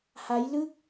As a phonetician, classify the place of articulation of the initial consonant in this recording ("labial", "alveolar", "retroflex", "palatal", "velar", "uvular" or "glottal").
glottal